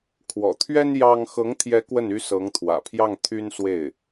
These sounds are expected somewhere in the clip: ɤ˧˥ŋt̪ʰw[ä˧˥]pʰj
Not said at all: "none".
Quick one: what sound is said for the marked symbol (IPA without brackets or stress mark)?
ä̰˨˩